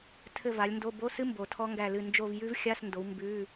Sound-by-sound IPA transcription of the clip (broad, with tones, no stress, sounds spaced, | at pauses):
tʰ ɘ˦˨ v a˨˦ lʲ n d o˧˥˧ b o˧˥˧ s ɨ˦˥ m b o˨˩ tʰ ɔ˦˥ ŋ ɡ æ˦˨ l ɨ˦˨ n d͡ʒ o˦˨ v j ʉ˦˥ v xʲ a˧˥˧ s n d o˨˦ w m b ʉ˧˥˧